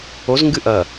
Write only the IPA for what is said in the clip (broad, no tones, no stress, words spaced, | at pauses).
oz ŋɡɨʔɐ